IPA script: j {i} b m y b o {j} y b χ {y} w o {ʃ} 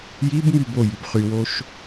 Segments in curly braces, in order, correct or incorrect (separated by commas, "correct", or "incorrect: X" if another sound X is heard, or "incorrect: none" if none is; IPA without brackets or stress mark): correct, correct, correct, correct